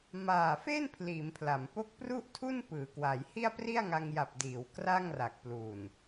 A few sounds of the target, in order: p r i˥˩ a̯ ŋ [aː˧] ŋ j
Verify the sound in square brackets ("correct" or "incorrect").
incorrect